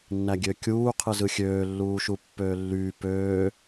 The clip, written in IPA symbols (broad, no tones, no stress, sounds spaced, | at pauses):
nː æ ɡʲ ø kʲ uː qʰ ɯ z ɯ xʲ øː lː uː ʃ u pː øː lː yː p øː